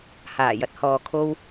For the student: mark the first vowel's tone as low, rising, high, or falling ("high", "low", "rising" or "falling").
low